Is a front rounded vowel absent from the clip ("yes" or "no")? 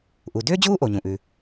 no